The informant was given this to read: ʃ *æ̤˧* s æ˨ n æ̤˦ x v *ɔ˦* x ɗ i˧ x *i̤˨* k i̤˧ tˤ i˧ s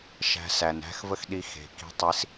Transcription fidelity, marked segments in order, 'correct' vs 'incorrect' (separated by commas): correct, incorrect, incorrect